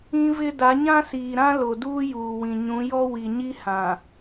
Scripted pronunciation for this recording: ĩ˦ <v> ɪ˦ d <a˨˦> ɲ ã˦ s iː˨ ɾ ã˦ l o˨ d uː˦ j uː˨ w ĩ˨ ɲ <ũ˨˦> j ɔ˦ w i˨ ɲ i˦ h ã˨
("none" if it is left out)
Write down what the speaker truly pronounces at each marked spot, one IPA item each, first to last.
v, a˨˦, ũ˨˦

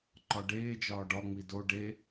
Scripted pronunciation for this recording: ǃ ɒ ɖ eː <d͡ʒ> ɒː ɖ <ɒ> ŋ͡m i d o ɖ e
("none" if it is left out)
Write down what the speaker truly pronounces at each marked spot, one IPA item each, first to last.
d͡ʒ, ɒ

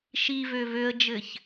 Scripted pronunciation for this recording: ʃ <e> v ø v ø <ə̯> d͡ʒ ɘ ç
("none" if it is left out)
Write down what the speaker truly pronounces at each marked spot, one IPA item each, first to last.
i, ə̯

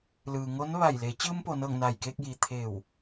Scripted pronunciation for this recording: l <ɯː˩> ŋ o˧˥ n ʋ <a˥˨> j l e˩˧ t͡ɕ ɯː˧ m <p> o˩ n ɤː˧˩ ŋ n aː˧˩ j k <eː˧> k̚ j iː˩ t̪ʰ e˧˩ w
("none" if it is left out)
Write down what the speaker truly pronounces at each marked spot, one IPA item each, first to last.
ɯː˩, a˧˩, p, eː˧

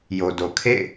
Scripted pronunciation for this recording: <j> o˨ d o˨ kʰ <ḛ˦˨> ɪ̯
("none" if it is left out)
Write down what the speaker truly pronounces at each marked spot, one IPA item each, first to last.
j, ḛ˦˨

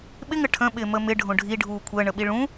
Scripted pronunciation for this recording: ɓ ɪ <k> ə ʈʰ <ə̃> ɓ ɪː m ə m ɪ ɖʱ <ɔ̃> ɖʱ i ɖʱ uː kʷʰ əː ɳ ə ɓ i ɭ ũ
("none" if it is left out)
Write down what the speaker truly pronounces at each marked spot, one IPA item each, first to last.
ŋ, ə̃, õ

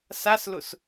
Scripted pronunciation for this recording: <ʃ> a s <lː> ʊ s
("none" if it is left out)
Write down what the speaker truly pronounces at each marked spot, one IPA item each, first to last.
s, l

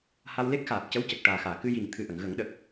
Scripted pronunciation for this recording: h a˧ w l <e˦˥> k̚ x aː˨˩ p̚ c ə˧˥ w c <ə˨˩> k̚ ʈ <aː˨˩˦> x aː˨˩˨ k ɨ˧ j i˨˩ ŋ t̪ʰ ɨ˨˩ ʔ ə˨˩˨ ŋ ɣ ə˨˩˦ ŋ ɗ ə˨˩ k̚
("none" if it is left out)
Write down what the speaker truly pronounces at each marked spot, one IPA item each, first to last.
e˦˥, ə˨˩, aː˨˩

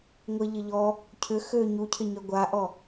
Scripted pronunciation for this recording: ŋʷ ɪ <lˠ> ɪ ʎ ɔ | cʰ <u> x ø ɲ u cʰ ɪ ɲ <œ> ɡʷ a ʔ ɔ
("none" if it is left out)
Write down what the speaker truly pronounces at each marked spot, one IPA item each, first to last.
ʎ, ʏ, œ

